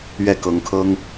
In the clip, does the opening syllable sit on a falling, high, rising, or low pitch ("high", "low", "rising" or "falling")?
falling